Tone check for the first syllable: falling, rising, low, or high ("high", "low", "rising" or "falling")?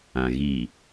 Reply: low